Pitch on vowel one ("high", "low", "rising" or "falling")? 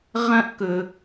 high